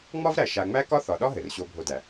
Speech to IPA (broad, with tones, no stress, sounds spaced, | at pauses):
ŋ͡m ɒ˥ v ɾ æ˨ ʃ a˨ ŋ͡m æ˥ k ɒ˦ θ ɒ˩ ɗ ɒ˥ ɦ ɘ˩ r ɕ o˨ bʱ o˨ d æ˩